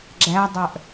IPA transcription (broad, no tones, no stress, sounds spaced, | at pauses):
ɡ͡ǁ æ dˤ œ ʔ